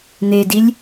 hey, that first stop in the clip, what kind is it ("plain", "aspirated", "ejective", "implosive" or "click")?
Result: plain